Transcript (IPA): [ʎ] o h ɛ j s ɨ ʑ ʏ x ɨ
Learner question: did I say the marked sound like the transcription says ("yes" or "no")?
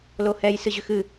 no